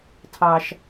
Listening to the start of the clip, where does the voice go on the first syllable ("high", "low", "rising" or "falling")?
high